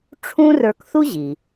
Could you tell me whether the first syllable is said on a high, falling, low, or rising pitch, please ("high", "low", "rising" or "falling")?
high